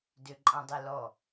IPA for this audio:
d ø ǃʼ ã dˤ e l ɔ

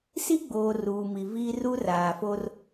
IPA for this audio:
s i˦ ɡ͡b oː˨ r uː˨ m i˨ v iː˦ r u˦ r aː˨ f o˦ r

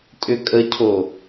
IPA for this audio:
tʼ ʏ kʼ ə cʰ o

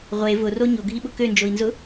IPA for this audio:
ʁʷ e v ʊ r o ɲ o ɡʱ i ɓ ʊ k ø n d͡ʒ o i̯ n z ʊ

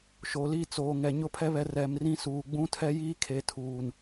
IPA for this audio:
ʃ o˨ l i˦˨ t͡s oː˨ ŋ ɛ˨ ɲ ʊ˦ pʰ ɛ˦ β ɛ˨˦ r ɛ˨ m r ĩ˦ s uː˨ ɡ͡b ũ˦ tʰ ɛ˦ j iː˦ kʰ e˨ tʰ uː˨ n

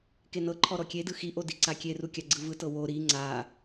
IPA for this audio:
k e n ɤ ǃʰ ɔ ɾ ɔ kʲ e d ɯ x i ʔ o d i ǀ a kʲ e r u kʲ a ɡ͡ǀ ɯ v ɯ t ɤ w o ɾ i ŋ͡ǀ a

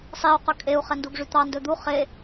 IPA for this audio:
sˤ i u̯ q ɵ kʼ e u̯ χ ɛ n d u ɡ ʐ y t̪ ɑ n d ɵ d̪ u χ e

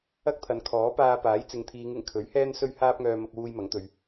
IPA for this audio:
ɐ˥ k̚ t̪ʰ ɐ˨ n kʰ ɔː˨˥ p aː˧ p aː˨˥ j t͡s ɪ˨˧ ŋ t̪ʰ iː˨˧ ŋ ɪ˨˩ ŋ kʰ ɵ˨˥ ɥ h ɛː˥ n s ɵ˥ ɥ h aː˥ p̚ ŋ œː˧ m ɐ˧ k̚ w uː˧ j m ɐ˨˥ ŋ t̪ ɵ˨˧ ɥ

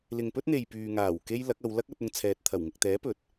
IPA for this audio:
l ɪ˨ ŋ p ɵ˥ t̚ n̪ e˨ j p yː˨ ŋ aː˨˩ w k e˥ j l ɐ˨˥ k̚ ɐ˨˧ w l ɐ˥ k̚ ɐ˧ t̚ ʊ˧ ŋ t͡sʰ ɛː˨ t̚ t̪ʰ ɐ˨˩ w ŋ ɪ˨ k̚ t̪ ɛː˨˥ p ɵ˨ t̚

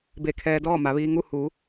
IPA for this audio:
b e˧˩ kʰ ɛː˧ d ɔː˥˨ m a˩˧ ʋ iː˧ ŋ u˥˨ h u˩˧

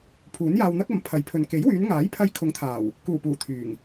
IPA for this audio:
pʰ uː˨˥ n j aː˧ w n̪ ɐ˥ k̚ ɐ˨˥ m pʰ ɐ˨˥ j pʰ ɵ˨ n k e˨˥ j w yː˨˧ n ŋ aː˨˥ j pʰ ɐ˧ j kʰ ʊ˨˥ ŋ t̪ʰ aː˨˩ w | k uː˨˩ p uː˨˩ t̪ʰ yː˨˩ ŋ

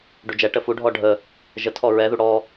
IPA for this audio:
ɖ u d͡ʒ ɛ ʈ ə f u ɖʱ ɔ ɖʱ ə | ʒ ə tʰ ɔ ɹ ɛ ð u ɽ ɔ

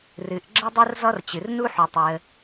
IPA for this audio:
r ɨ˩ ʔ ɡ͡ǁ ə˥ dˤ u˥ r z ɔ˥ r t͡ɕ ɨ˩ r n u˥ ħ u˩ tˤ ɨ˩ ə̯

